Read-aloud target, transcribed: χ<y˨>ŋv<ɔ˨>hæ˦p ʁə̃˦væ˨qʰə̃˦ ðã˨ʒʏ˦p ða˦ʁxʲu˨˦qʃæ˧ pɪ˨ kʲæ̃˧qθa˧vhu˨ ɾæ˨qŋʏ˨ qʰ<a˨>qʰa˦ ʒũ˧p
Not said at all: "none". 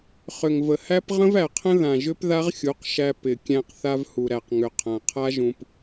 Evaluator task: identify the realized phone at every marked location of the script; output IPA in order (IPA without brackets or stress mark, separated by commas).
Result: ʏ˨, ə˨, ã˨